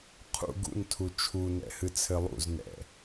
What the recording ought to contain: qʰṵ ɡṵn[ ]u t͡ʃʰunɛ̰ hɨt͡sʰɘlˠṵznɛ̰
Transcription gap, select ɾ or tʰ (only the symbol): tʰ